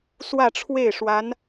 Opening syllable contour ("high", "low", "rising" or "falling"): falling